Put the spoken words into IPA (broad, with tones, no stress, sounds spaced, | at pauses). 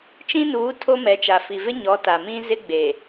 t͡ʃ ĩ˦ n uː˨˦ tʰ o˦ m ɛ˨˦ t͡ʃ a˨ f i˨ v ɪ˦ ɲ ɔ˨˦ t a˨ m ĩ˦ z ɪ˦ ɡ͡b e˨